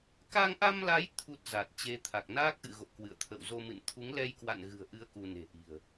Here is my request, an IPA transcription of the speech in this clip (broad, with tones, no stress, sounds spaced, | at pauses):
k a˧ ŋ ʔ a˧ m l a˨˦ j t̪ʰ u˦˥ t̚ z a˨˩ t̚ t͡ɕ e˨˦ t̪ʰ a˨˩ k̚ n aː˦˥ k̚ ʔ ɨ̰˧˨ ɣ o̰˧˨ k w ɨ̰˧˨ ə̯ t̪ʰ ə̰˧˨ w z o˧ m ɨ̰˧˨ n t̪ʰ u˨˦ ŋ l ɛ˧ j k w a̰˧˨ n ɣ ɨ̤˨˩ ə̯ ʔ ɨ˨˦ ə̯ k u˧ n e̤˨˩ ʔ i̤˨˩ ə̯